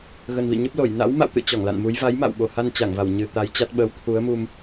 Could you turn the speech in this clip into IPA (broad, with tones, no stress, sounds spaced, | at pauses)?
ɣ ə˨˩ n v ḭ˧˨ ɲ ə˦˥ p̚ l o˧˩ j n a̰˧˥ w m a̰˧˨ w t̪ ɨ̰˧˨ t͡ɕ ɔ˧˩ ŋ l a̰˧˨ n m u˨˦ j v a˨˦ j m a̰˧˨ w ɓ o˨˩ h a˧ n t͡ɕ a˧˩ ŋ v a˧˩ w ɲ ɨ˨˩ t̪ a˨˦ j t͡ɕ a˦˥ t̚ ɓ əː˨˦ w t̪ʰ u˨˦ ə̯ m u˧ m